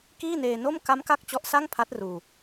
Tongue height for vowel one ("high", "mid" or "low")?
high